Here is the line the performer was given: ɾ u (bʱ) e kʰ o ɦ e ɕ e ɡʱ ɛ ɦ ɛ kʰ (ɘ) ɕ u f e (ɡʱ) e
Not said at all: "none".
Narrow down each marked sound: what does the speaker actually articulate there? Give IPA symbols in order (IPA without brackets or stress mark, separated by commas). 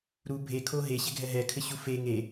bʱ, ɘ, ŋ